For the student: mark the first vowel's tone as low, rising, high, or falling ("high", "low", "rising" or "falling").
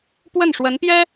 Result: falling